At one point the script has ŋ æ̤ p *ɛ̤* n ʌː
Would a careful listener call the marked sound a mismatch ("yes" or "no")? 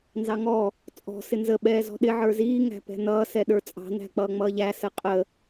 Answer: no